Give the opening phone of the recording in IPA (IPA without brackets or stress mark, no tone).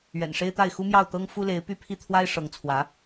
ɥ